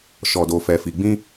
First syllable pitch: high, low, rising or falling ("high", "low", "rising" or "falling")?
low